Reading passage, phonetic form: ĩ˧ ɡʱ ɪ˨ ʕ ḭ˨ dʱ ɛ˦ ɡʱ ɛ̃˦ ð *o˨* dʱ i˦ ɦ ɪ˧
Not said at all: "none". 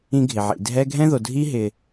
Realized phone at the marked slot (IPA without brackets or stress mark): o˨